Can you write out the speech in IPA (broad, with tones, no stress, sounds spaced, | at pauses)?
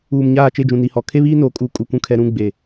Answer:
uː˨ m ɲ aː˦˨ t͡ʃ e˦˨ d͡ʒ ũ˨ n i˨ h ɔ˨ kʰ e˦ β iː˦ n oː˨ kʼ uː˨ kʼ u˨ kʷ ũ˨ kʰ ɛ˨ ɾ ũ˦˨ ɡ͡b e˨